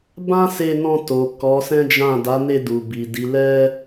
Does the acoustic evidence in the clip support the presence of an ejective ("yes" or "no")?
no